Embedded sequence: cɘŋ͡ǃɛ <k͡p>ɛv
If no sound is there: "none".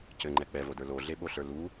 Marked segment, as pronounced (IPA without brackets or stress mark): k͡p